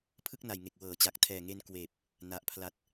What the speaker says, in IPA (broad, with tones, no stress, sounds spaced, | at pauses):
pʰ ɯ˥˩ k̚ n a˨˩ j ŋ e˨˩ k̚ w ɤː˩˦ t͡ɕ a˨˩ k̚ tʰ ɛː˨˩ ŋ e˧ n k w eː˨˩ p̚ | n a˨˩ ʔ pʰ l a˨˩ t̚